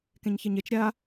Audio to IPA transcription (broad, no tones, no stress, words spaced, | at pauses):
kẽɲçeɲet͡ʃ ɾʲa